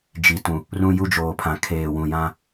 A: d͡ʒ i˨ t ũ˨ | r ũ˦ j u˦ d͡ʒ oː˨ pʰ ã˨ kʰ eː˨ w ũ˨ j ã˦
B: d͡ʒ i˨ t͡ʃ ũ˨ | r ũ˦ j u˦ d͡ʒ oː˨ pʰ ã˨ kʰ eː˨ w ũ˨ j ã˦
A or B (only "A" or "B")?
A